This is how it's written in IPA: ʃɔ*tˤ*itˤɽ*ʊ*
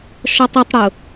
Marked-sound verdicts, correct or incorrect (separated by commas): correct, correct